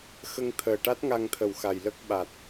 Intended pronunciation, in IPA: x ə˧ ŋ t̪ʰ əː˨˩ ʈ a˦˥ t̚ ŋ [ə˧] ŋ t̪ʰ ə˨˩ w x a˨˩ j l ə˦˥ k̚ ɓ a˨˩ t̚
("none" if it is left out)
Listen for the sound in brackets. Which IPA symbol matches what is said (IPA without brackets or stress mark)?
a˧